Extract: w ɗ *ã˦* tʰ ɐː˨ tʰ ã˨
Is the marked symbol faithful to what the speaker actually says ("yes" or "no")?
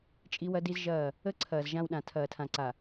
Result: no